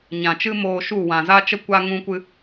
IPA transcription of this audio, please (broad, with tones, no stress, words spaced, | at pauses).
ɲã˨ t͡ʃɨ˦moː˧ʃu˦˨ wã˨za˦t͡ʃə˦ kʷa˦ŋũ˦kʷɨ˦